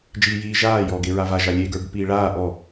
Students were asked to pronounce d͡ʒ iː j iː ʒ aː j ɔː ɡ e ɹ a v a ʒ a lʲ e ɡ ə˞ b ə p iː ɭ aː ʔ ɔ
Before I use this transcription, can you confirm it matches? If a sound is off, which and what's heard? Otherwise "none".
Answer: none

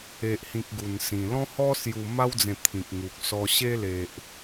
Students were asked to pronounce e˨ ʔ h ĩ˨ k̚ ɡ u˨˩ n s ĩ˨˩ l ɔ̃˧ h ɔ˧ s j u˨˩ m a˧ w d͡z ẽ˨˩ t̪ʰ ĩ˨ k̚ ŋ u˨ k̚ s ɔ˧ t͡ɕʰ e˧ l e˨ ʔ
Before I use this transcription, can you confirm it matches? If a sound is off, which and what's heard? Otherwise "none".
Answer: t͡ɕʰ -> ɕ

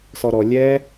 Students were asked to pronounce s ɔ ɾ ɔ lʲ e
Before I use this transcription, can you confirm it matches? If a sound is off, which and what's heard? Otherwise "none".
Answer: e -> ɛ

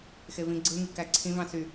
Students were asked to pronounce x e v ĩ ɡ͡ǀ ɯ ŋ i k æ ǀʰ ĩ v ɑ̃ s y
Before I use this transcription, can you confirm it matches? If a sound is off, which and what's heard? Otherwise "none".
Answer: none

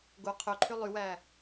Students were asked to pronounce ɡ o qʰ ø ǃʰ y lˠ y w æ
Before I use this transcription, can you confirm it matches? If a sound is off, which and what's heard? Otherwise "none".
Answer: none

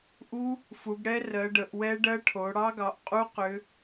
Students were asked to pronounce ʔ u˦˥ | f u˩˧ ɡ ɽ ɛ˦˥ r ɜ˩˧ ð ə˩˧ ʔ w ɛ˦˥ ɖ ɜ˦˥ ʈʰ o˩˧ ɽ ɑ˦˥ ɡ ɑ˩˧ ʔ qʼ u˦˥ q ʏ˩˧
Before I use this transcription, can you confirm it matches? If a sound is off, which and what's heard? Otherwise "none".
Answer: ð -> ɖ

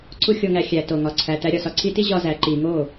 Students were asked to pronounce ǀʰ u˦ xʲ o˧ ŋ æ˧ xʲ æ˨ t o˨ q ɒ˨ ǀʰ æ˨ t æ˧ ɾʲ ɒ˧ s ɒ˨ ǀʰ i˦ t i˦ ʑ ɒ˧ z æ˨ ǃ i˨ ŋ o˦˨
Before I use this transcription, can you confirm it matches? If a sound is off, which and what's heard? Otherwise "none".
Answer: q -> ŋ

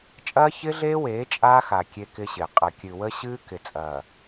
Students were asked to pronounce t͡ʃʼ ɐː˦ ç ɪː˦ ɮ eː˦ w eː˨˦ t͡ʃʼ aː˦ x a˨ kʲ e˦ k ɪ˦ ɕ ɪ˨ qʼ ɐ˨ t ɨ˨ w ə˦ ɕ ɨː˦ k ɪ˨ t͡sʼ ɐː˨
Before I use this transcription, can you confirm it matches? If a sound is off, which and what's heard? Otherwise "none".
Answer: t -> kʲ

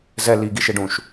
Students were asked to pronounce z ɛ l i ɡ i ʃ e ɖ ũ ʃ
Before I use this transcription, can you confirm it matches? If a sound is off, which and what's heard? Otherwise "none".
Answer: none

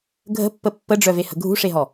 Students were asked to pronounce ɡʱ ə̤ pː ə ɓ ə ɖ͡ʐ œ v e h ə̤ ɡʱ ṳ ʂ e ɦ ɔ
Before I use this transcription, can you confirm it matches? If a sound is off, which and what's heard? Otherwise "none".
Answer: ɓ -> pː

